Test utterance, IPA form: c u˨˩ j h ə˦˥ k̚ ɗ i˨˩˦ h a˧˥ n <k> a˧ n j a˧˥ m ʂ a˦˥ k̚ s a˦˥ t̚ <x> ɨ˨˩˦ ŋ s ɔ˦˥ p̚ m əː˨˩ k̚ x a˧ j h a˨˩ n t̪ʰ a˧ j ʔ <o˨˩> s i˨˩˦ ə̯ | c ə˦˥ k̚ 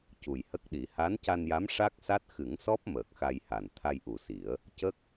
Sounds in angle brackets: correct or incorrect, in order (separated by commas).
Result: incorrect, correct, incorrect